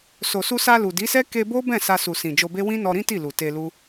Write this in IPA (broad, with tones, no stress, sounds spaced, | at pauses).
s o˨ s u˧ s a˧ l u˨ d i˨˦ s ɛ˦ k e˧ b o˦ b ɛ̃˦˨ s a˧ s u˨ s ĩ˨ d͡ʒ o˧ b e˦ w ĩ˦ n ɔ˧ ɾ ĩ˦ t i˦˨ l u˨ t e˧ l u˦